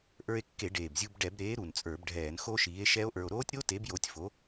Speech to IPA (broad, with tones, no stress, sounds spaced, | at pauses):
ʔ ə˞˧ e̯ kː e˧˩˧ ɖ eː˨˩ b zʲ u˧ b ɖ ɛ˧˩˧ b ɾ eː˨˥ ɾ u˨˩ n t͡sʼ ə˞˧˩˧ b ɖʱ ɛː˧˩˧ n x o˦˥ ʃ iː˨˥ e̯ ʃ ɛ˦˥ o̯ ʔ ə˞˧ o̯ ɾ oː˦˥ tʲ ɾ o˦˥ t e˨˥ b j o˨˥ tʲ f o˨˥